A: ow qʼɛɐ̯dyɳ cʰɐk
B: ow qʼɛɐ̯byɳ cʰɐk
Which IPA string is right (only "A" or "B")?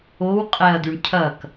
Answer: A